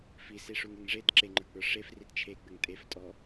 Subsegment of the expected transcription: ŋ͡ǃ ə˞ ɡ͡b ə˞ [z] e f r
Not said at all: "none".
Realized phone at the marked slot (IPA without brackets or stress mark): ʂ